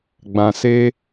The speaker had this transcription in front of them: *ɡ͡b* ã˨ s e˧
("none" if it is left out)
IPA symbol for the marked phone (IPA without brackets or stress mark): ɡ͡b